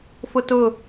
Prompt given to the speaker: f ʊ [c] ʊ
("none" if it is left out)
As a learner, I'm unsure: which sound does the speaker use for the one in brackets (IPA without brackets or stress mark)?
t